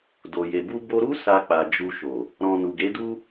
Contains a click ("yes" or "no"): no